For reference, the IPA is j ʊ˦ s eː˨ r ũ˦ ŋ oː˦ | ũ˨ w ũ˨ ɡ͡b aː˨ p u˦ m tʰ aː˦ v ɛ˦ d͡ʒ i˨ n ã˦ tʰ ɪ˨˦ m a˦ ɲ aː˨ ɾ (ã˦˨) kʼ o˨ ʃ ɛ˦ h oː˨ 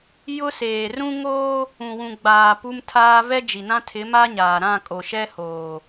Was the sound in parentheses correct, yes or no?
yes